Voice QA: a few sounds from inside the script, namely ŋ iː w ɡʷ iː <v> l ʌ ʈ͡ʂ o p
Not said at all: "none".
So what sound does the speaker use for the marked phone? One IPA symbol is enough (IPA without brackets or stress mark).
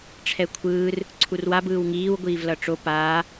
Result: v